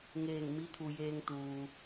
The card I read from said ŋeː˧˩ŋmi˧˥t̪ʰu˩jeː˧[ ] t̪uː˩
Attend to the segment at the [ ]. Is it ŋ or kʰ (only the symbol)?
ŋ